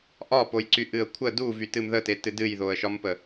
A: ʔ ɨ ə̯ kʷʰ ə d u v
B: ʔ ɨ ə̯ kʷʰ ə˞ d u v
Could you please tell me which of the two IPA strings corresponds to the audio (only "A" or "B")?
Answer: A